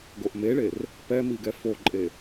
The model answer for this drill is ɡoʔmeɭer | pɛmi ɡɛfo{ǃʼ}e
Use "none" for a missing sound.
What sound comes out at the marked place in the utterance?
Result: ǃʼ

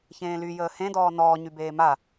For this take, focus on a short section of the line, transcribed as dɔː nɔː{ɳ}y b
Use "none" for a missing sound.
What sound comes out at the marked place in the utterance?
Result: ɲ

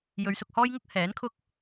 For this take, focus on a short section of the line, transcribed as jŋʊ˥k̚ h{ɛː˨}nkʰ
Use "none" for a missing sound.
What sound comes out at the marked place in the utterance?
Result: ɛː˨˥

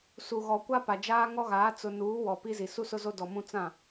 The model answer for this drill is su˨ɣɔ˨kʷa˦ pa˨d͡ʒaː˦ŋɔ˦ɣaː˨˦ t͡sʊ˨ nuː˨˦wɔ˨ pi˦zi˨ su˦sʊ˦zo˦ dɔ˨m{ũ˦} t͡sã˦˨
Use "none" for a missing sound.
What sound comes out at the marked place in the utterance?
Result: ũ˦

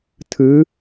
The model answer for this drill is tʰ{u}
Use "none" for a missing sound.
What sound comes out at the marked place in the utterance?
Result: ɯ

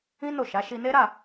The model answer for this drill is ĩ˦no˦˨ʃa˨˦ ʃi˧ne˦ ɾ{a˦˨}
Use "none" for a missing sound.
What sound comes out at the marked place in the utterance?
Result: a˦˨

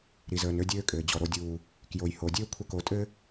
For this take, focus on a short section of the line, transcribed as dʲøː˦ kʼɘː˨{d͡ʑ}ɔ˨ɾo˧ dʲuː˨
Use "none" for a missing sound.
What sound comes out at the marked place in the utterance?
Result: d͡ʑ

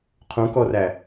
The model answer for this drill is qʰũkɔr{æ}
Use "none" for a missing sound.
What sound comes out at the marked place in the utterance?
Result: æ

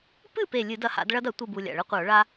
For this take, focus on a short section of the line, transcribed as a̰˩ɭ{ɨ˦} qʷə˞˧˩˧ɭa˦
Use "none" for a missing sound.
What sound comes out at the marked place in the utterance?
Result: ɨ˦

